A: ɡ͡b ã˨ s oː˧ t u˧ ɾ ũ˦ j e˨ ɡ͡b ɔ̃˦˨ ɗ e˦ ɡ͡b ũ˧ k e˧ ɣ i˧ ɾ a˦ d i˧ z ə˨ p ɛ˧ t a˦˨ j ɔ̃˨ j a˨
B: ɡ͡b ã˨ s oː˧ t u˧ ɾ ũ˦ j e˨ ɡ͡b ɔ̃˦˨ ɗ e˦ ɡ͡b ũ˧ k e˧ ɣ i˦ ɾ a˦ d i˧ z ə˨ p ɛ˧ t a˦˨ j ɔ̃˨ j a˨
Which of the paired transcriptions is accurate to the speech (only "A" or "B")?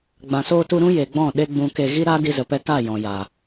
B